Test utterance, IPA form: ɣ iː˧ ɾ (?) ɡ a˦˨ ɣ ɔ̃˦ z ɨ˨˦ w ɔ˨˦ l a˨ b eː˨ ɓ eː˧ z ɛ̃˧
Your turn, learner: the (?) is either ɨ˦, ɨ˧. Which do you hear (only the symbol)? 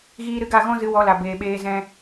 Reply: ɨ˧